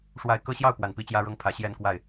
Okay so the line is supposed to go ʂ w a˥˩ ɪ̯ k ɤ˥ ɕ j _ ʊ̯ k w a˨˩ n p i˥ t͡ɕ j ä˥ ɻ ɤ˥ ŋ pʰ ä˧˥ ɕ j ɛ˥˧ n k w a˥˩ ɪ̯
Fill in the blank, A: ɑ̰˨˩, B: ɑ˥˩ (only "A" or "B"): B